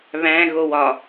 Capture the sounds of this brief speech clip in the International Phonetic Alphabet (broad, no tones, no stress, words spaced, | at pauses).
βæ̃ɣow ɒ